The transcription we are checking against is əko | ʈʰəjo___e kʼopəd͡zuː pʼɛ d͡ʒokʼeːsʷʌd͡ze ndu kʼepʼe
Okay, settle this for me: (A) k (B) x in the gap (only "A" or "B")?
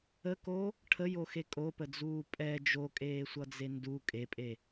B